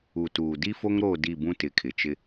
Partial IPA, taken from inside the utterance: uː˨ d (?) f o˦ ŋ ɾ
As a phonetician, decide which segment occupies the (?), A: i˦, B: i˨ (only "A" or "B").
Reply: A